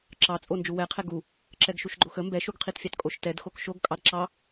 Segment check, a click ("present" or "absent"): present